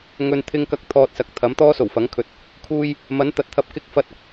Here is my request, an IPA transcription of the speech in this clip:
ŋ ɵ˨ n t̪ʰ ɪ˥ ŋ k ɐ˧ k̚ t̪ʰ ɔː˧ t̚ s ɐ˨˥ k̚ t̪ʰ ɐ˨˥ m t̪ ɔː˥ s o˨˩ w f ɐ˨˥ ŋ kʰ ɵ˨˥ t̚ | kʰ uː˧ j | m ɐ˨˥ n t̪ ɐ˨˥ t̚ t̪ʰ ɐ˧ p̚ k ɪ˥ k̚ f ɐ˧ t̚ ɐ˨ k̚

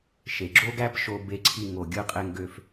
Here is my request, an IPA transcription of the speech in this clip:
ʃ e˩ ɡ͡ǁ o˥ ɡ æ˥ p ʃ o˧ b e˧ ǀʰ i˧ ŋ o˩ ɡʲ ɯ˧ qʼ e˧ ŋ ɡ ø˧ f

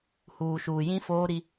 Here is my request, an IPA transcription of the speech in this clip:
h uː˨ ʃ uː˨ j ĩ˦ f oː˦ ɾ i˦

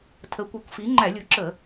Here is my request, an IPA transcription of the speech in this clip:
tʰ ə˩˥ kʷ ʌ˩˥ kʷ f i˩˥ ŋ͡ǃ æ˧˩˧ lʲ u˩˥ ǁ ə˧˩˧

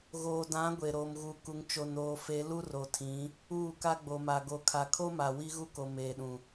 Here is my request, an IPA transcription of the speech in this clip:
ɣ oː˨ d ã˨˦ ɡʷ e˨ ɾ oː˨ m ɣ uː˨ k u˨ ŋ t͡ʃ o˨ n oː˨ f e˨˦ l u˦ r o˨ tʰ ĩ˨˦ | uː˦˨ k a˦ ɡ͡b o˨ m a˨ ɡ o˨ kʰ a˨ kʰ o˦ m a˨ w i˦ ɣ u˦ k o˨ m eː˨ ɗ ũ˨

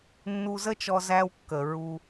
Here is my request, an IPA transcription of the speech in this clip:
nː u˧ z ə˥ t͡ʃ ɔ˧ z æ˧ w kː ə˩ ɹ u˧

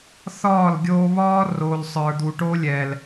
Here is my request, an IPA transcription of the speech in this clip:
θ ɒː˦˨ l ɡʲ oː˧ β ɒː˦ r o˨ l sˤ ə˞˨ d̪ u˨ ʈ o˦ lʲ ɛ˨ l

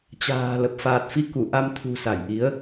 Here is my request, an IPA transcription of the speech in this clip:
t͡ɕ a̤ː˨˩ l ə˨˩ p̚ f aː˨˩ t̚ f i˧ k u˧˩ ʔ a˧ m t̪ʰ ṳ˨˩ s a˧˩ j ʔ i˨˦ ə̯

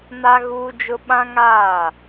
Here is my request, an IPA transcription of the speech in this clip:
n a˦ ɣ uː˦ d͡ʒ ʊ˦ ɓ ã˦ ŋ aː˦˨

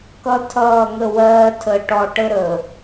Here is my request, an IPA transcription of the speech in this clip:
k ʌ˦ tʰ ʌː˦˨ ŋ ə˦˨ w ɜː˦ tʰ əː˨ ʈ ɔ˨ ʈ ə˦ ɾ əː˨

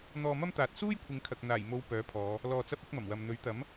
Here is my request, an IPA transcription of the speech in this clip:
n̪ ɔː˧ m ɐ˥ m t̪ aː˨ t̚ s uː˥ j kʷʰ ɪ˨˧ ŋ kʰ ɐ˨ k̚ n̪ aː˨˩ j m o˨˧ w p œː˨˥ pʰ ɔː˨˧ | l ɔː˧ t͡s ɐ˥ p̚ ɐ˥ k̚ m ɐ˨˩ m w ɐ˨ m n̪ ɵ˨˥ ɥ t̪ ɐ˨˥ m

